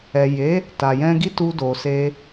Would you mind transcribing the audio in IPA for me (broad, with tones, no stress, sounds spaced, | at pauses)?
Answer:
ɛ˨ j e˨˦ | t a˨ j ɛ̃˧ ɡ i˦ t u˧ d o˨ s e˧